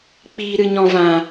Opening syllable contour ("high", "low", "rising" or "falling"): low